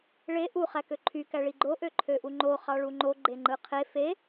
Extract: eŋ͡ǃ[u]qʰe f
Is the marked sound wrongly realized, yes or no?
yes